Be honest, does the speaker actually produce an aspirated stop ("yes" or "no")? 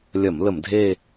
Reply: no